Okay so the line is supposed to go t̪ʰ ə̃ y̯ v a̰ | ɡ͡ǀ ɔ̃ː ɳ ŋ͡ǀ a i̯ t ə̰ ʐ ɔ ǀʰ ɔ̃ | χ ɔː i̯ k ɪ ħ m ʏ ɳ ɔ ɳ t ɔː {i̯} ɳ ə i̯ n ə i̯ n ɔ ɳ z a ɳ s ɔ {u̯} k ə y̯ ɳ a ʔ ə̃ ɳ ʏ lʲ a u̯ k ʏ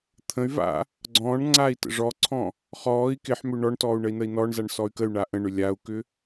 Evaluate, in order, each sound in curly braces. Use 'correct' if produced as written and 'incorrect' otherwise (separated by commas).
incorrect, incorrect